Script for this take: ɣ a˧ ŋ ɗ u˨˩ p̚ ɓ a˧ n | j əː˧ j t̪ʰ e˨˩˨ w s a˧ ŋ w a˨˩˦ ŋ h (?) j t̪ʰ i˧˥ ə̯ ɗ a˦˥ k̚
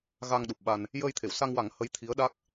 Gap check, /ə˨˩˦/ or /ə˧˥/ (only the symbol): ə˧˥